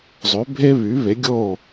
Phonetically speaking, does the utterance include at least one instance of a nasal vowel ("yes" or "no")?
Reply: no